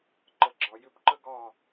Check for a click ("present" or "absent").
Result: present